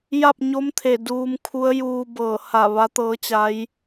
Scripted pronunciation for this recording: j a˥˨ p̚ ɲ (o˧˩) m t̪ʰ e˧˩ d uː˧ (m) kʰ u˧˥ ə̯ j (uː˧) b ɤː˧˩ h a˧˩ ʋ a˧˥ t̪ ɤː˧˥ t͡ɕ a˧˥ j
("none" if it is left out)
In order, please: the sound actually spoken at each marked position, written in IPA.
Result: o˧˥, m, uː˧

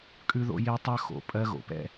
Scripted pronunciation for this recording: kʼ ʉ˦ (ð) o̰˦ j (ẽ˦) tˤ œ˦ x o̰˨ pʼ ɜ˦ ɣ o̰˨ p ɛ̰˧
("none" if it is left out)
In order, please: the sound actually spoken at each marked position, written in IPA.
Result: ð, e˦

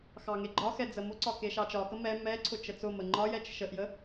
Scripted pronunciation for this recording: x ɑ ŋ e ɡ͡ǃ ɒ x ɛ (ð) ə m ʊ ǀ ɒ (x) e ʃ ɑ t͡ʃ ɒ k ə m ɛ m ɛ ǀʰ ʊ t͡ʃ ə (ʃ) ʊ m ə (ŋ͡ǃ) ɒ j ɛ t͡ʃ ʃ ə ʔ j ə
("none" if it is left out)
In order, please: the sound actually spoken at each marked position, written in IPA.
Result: d͡z, k, t͡s, ŋ͡ǃ

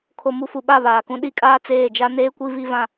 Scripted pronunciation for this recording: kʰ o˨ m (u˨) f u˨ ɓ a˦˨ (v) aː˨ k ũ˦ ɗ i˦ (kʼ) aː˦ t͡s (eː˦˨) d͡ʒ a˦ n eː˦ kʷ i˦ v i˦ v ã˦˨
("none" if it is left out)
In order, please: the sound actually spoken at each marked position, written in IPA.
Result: u˨, β, kʼ, eː˦˨

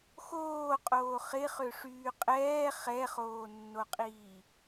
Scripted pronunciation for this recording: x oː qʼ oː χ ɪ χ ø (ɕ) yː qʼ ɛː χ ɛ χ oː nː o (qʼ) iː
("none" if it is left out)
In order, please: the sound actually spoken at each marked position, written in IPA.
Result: ʂ, qʼ

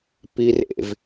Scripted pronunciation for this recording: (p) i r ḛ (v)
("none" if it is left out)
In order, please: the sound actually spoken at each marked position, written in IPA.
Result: p, v

